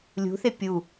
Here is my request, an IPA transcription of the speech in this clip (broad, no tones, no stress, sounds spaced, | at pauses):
lʲ ṳ θ e pʲ u